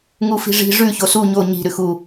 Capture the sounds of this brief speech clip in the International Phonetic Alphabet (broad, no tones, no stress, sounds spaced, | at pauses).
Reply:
ŋ u f i̤ ʐ i̤ ʐ ʉ ç o s u ɲ o ɲ i̤ ɾ ʉ x u